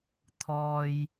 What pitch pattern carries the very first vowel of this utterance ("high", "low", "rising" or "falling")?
low